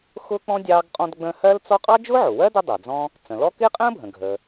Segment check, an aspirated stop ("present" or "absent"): absent